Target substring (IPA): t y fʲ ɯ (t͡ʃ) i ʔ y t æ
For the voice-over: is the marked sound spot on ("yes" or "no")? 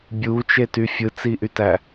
no